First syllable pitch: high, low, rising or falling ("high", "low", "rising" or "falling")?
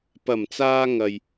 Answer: low